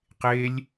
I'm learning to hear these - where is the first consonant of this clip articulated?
uvula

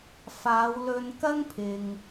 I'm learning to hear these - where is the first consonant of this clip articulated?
lips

